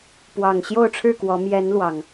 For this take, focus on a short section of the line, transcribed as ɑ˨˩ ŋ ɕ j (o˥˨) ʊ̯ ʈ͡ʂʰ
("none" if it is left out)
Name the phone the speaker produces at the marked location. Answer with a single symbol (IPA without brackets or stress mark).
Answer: o˥˨